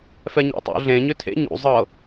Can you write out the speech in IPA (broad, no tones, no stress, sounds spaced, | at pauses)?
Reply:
f ɛ ɲ æ̰ tˤ ṵ ɮ ẽ ɲ ʏ tʰ ḛ ɲ ṵ zˤ ɤ